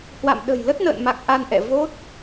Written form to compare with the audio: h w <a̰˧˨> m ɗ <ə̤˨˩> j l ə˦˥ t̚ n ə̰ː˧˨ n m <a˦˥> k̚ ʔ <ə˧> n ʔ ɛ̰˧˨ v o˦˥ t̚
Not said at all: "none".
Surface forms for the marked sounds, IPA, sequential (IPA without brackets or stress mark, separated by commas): a̰˧˨, ə̤˨˩, a˨˩, a˧